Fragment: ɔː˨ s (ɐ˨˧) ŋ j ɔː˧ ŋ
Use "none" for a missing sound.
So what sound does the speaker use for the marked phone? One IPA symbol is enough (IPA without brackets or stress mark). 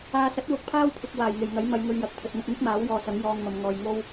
ɐ˨˥